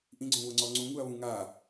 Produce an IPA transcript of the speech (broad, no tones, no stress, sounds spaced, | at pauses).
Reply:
ʔ ĩ ɡ͡ǀ õ β ʊ ŋ͡ǀ ɔ ŋ͡ǀ ũ ŋ u ɐ̯ β ũ ŋ a